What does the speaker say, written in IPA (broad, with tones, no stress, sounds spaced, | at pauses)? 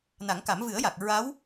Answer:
n a˨˩˦ ŋ k a˨˩˦ m v ɨ˨˩˦ ə̯ j a˨˩ k̚ ɹ a˧˥ w